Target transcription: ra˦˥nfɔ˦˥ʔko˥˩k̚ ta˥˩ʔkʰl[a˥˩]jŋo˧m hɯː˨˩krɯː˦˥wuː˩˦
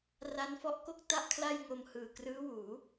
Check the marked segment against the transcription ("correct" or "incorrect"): correct